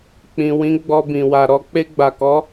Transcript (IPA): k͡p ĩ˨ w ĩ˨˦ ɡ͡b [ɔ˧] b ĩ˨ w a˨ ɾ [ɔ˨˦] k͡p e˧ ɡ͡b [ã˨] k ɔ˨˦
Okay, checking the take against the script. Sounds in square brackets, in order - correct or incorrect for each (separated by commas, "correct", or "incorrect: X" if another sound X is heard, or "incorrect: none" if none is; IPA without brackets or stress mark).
correct, correct, incorrect: a˨